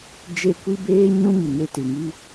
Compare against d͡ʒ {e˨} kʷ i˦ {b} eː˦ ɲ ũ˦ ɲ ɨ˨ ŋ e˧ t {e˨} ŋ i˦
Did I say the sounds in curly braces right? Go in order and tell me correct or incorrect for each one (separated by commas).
incorrect, correct, incorrect